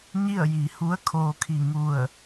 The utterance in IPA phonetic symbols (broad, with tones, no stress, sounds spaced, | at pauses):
ɲ i˥˨ ə̯ j i˩˧ h u˧˥ ə̯ kʰ oː˧ kʰ i˧˩ ŋ u˧˩ ə̯